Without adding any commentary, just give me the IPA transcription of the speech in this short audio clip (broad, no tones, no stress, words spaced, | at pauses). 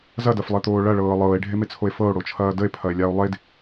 zɐdɐflˠet̪oː ɭɐɭɤː lˠɤːe̯ɖʱemet͡sʰoe̯ fɤo̯ɽot͡ʃʰɐː dəe̯pʰɐe̯lʲao̯ lˠed